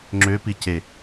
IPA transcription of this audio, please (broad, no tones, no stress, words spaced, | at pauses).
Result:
ŋ͡ǁøpi ce